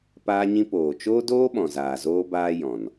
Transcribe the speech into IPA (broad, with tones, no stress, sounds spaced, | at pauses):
p aː˦ ɲ ĩ˦ p oː˨ t͡ʃ oː˦ d oː˦ ɓ ɔ̃˨ z aː˨ z oː˦ b aː˦ j ɔ̃˨ n